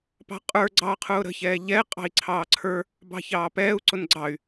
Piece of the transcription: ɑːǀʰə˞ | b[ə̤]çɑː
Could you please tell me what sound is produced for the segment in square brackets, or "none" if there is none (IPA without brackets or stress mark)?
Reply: ɑ̤